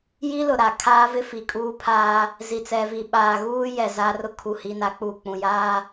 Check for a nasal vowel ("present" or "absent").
present